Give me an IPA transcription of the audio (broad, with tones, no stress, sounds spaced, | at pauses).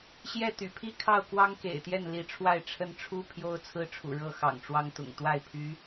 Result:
ɕ j ɛ˥˩ t̪ y̰˨˩ pʰ i˥˧ kʰ ɑ˥˩ ʊ̯ k w ɑ˥ ŋ k ḛ˨˩ ɪ̯ t̪ j ɛ˥˩ n l i˧˥ ʈ͡ʂʰ w a˥˩ ɪ̯ ʈ͡ʂʰ ə˥ n ʈ͡ʂʰ u˥ pʰ j o˥ ʊ̯ t͡sʰ ɹ̩˥ ʈ͡ʂʰ ṵ˨˩ ɻ ɤ˥˩ x ɑ̰˨˩ ŋ ʈ͡ʂ w ɑ˥ ŋ t̪ ʊ̰˨˩ ŋ t̪ w a˥˩ ɪ̯ pʰ y˧˥